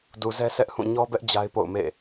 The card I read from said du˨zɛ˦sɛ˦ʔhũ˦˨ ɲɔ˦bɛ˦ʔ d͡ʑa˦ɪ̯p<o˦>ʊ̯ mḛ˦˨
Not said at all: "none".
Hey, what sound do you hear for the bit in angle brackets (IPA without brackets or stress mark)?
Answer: o̰˦˨